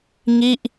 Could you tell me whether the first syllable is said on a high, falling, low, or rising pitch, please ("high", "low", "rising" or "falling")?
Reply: falling